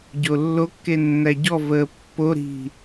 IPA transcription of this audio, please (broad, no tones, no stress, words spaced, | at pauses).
ɟolːokːe nːæɟɔvəː pːoɾi̤